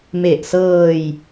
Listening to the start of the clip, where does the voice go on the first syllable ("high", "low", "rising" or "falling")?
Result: low